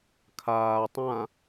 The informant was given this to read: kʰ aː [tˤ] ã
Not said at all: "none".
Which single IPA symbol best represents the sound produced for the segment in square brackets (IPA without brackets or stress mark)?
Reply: tˤ